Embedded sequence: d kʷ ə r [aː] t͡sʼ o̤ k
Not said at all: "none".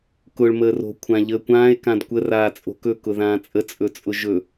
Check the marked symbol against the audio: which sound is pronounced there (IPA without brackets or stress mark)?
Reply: aː